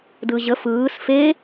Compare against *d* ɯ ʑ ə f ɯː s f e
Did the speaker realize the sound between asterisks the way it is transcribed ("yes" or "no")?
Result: yes